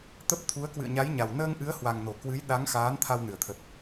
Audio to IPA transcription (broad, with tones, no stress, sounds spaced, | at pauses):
t̪ ə˦˥ p̚ t̪ʰ u˨˦ ə̯ k w ɨ̰˧˨ ə̯ ɲ a˨˦ j ɲ a˨˩ w n əː˧ ŋ ʔ ɨ˨˦ ə̯ h w a˨˩ ŋ n o˧˩ k w ɨ˨˦ j ɗ a˨˦ ŋ x aː˨˦ n t̪ʰ a˧ w n ɨ˧˩ ə̯ t̪ʰ ə˨˩ t̚